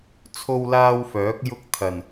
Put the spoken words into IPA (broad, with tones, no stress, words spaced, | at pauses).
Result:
t͡sʰo˥wlaː˥wfœː˨˥k̚ jʊ˥k̚ t̪ʰɐ˨˩n